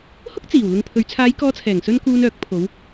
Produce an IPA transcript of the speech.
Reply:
hʊ˥k̚t͡siː˨˩w lʊ˧ŋpʰɵ˨˧ɥ t͡sʰaː˨˧jkɔː˨˧t͡sʰɛː˨˩ŋsɵ˧n kuː˧nœː˨˥k̚pʰo˨˧w

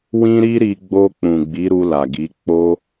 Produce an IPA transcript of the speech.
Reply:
wĩ˦ɾi˦ɾi˧ ɡ͡bo˧k͡pũ˨ ɡ͡bi˨˦ɾu˧la˨ɡi˨˦ k͡po˦

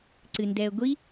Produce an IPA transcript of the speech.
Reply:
ǀɨndɛə̯ɡʷi

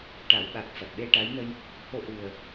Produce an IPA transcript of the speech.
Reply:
ʈa˨˩˦wɓa˨˩k̚ fa˨˩t̚ɓe˧ʈa˧˥jnə˧j | ho˧ʔɨ˨˩ə̯

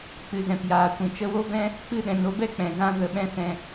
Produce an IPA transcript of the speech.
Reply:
k͡pɨ˨zɛ̃˨pjaː˨kʷĩ˨ t͡ʃə˧wo˦vɛ̃˦ | k͡pɨ˦˨ɗɛ̃˨n o˧bɛ˦k͡pɛ̃˨ zã˦ ɣə˧ ɓɛ̃˦sɛ̃˧

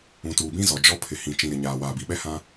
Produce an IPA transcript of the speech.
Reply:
ũ˨tuː˨bĩ˦zɔ˨ d͡ʒɔ˦ pʰɪ˨hĩ˨ t͡ʃĩ˨ɾɪ˨ɲaː˨ waː˨bi˨ɓɛ˦hã˦

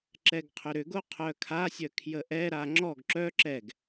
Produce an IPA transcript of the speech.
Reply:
ǁɛɡqʰʏɾʏɡo qʰœkʰasʲœ kʰjəʔɛɾa ŋ͡ǁɔɡ ǁœ ǁɛɡ

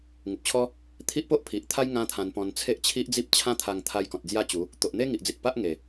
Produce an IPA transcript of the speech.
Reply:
ŋu˨p̚t͡ɕʰɔ˦ | t̪ʰi˦ʔpo˦ʔ pʰi˨ʔt̪ʰa˦j ŋã˦t̪ʰã˧npɔ̃˧n t͡sʰe˦ʔt͡ɕʰi˦ʔd͡zi˦p̚ t͡ɕʰã˦ t̪ʰa˧ŋ t̪ʰa˧jkɔ̃˨t̚ d͡zja˥˧t͡ɕu˨˦ | t̪o˨ʔn̪e˦ŋi˨ʔd͡zi˨t̚ pa˦ʔ ŋe˨˩

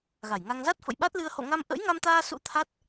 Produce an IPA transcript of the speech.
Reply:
ɣa˧˩jŋa˧ŋ za˦˥t̚fə̰˧˨jɓa˦˥t̚lɨ˧ə̯ ho̰˧˨ŋa˧m ʔə̰˧˥jŋa˧mt̪aː˧sṵ˧˥ t̪ʰa˦˥t̚

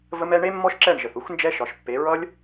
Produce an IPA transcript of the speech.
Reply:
və˦mɛ˦ ɳe˦mːɔ˦ʃǁɛ˦˨ɳʒə˨θ u˦xnd͡ʒɛ˦ʃɒ˨ʃpːe˨˦ ɹʌ˦lʲ

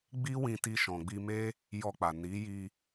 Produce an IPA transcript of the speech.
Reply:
ɡ͡bi˦wĩ˧ti˧ ʃɔ̃˨ɡ͡bi˧me˦ | jɔ˧k͡pa˨ ni˨˦ji˧

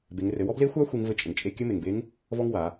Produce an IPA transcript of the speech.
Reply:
be˩˧ŋrɘ˩˧wɔ˥ ble˧˥xʷa˧˥ xʷe˧˥ŋvɘ˧˥t͡ʃʼə˩ŋ t͡ʃʼe˧˥ kʲɘ˧˥me˩ŋbe˧˥ŋ | vɔ˥ŋwa˩˧

